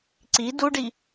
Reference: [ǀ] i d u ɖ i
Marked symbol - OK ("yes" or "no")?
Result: yes